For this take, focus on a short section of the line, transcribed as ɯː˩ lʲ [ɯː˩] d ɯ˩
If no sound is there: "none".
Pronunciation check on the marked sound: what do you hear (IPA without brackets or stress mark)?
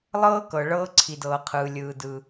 ɯː˩